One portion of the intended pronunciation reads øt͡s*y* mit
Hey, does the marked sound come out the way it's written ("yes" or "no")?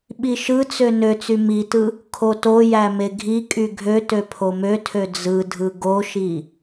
yes